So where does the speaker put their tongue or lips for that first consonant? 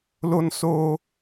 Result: tongue tip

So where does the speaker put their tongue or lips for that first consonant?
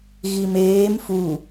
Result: velum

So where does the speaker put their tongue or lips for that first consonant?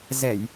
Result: tongue tip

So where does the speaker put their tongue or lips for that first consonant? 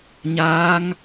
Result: palate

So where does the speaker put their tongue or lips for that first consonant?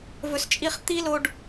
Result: lips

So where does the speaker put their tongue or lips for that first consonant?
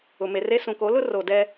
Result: lips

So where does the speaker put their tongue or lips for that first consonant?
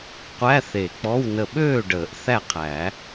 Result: uvula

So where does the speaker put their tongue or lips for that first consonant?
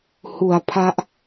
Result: throat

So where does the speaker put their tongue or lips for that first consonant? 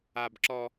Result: lips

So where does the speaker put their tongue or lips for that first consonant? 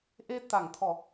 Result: throat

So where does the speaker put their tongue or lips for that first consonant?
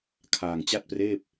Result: velum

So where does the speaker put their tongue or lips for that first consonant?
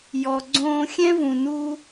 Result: palate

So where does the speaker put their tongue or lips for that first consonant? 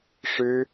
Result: retroflex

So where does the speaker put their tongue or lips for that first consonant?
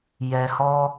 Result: palate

